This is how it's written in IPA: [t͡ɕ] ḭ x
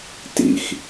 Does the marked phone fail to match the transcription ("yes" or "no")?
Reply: yes